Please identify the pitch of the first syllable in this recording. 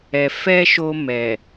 low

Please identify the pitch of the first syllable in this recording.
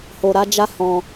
low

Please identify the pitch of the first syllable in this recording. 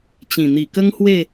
low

